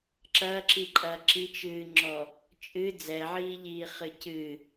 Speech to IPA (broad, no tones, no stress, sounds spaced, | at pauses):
ǁ ɐː ǁ i ǃʼ ɐː ǁ i t͡ʃ ɨː ŋ͡ǁ ɔ | t͡ʃʼ ɨ d͡z ɛ ʕ iː ʎ iː χ ɨ c ɨ